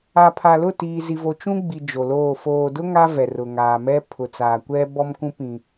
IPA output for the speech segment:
a˨ pʰ a˨ l ʊ˦˨ t iː˨ z i˨ v o˨ t͡ʃ ũ˦ ɡ͡b i˨ d͡ʒ o˨ l oː˦˨ f oː˨ d ʊ˦ ŋ a˦ v ɛ˨ r ʊ˨ ŋ aː˨ m ɛ˦ pʰ ʊ˨ t͡s aː˨ kʷ ɛ˦ b ɔ˦ m k ũ˦ p ĩ˨

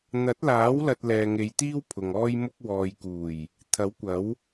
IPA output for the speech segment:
n̪ ɐ˨˥ t̚ l aː˨˥ w l ɐ˧ t̚ l ɛː˨ ŋ e˨˧ j t̪ iː˥ w pʰ ʊ˨ ŋ ɔː˥ j m ʊ˥ k̚ w ɔː˨ j k uː˨˩ j | t̪ʰ ɐ˨˥ w kʷ ɐ˨˥ w

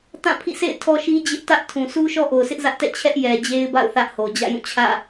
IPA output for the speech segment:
t ã˦˨ pʰ ḭ˦˨ sʰ ḛ˦˨ ɪ̯ tʰ ɔ˦ ʃ i˦ d͡ʑ ɪ˦ ʔ t ä˦ ʔ tʰ ũ˨ s u˦ ʃ ɔ˦ ʔ o˨ ʊ̯ sʰ ɪ˦ ʔ z ä˦ ʔ t ɛ̰˦˨ t͡ɕʰ ɛ˦ ʔ j ɛ˨ d͡ʑ e˦ ɪ̯ b a̰˦˨ ʊ̯ θ ä˦ ʔ h o˨ d͡ʑ ä̰˦˨ j ũ˦˨ t͡ɕʰ ä̰˦˨

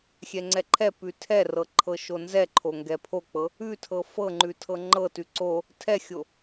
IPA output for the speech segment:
xʲ ɛ ŋ͡ǀ ɛ ǃʰ ɛ p ʉ tʰ ɛ r ɤ ǃʰ ɤ ʃ o n z ɛ ǃʰ o ŋ ɡ ɛ pʰ o k͡p ɤ | ʉ tʰ ɤ f ɤ ŋ͡ǃ ʉ tʰ ɤ ŋ͡ǃ ɤ t ʉ ǀ o | tʰ ɛ xʲ o

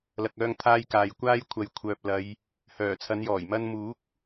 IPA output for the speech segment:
l ɐ˨ k̚ œː˧ ŋ t̪ʰ aː˧ j k aː˨ j kʷ aː˥ j kʷʰ ɐ˨˧ j kʷʰ œː˨ p̚ l ɐ˨˧ j | h œː˨˩ t͡sʰ ɐ˨˧ n j ɔː˨˩ j m ɐ˧ n m uː˨˥ k̚

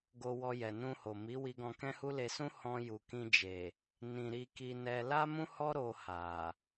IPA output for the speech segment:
ɡ o˧ w ɔ˧ j ɛ˨ n ũ˧ h o˨ m i˨˦ w i˧ ɡ ɔ̃˧ k ɛ̃˦ h u˦ l e˧ s ũ˦ h ɔ̃˧ j u˨ k ĩ˧ d͡ʒ e˨ | n ĩ˨ ɾ i˧ k i˧ n ɛ˧ l a˦ m ũ˦ h ɔ˦ ɾ o˧ h a˨

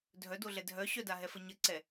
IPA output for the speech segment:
dʱ œ d o ɮ ɛ dʱ œ ɕ œ d a ɦ ɛ f ə ɲ ə ǀ ɛ

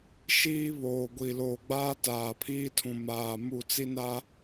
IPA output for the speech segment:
ʃ iː˦ β oː˨ ɡʷ i˨ l oː˨ ɡ͡b aː˦ t aː˨ pʰ iː˦ tʰ ũ˨ m aː˨ m u˦˨ t͡s i˦ n a˦

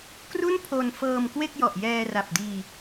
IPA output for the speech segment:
k r u˥˩ n pʰ o˧ n f ɤː˧ m k w e˥˩ k̚ j ɔ˨˩ ʔ j ɛː˧ r a˨˩ p̚ d iː˧

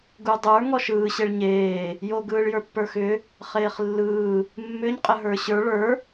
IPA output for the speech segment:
ɡ u dˤ ə˞ ŋ ɔ ʃ ɯː ɕ e ɭ ɲ eː | j o ɡ ɯː ɭ j ə˞ pː ə˞ x ʏ | χ eː χ lː ɯː | mː ʏ ɲ qʼ ə ɦ ə˞ ɕ ə˞ ɭ ə˞

